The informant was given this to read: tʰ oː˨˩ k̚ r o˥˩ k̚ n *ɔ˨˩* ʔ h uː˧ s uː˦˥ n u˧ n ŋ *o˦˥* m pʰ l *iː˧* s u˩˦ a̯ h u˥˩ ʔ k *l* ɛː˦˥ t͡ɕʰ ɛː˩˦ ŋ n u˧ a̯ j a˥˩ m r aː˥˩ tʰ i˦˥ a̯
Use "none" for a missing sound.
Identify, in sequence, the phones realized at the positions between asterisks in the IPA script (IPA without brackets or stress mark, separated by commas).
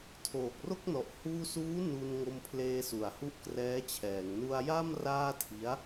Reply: ɔ˨˩, o˧, eː˧, r